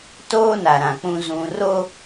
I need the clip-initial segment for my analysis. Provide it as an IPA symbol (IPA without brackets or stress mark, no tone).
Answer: t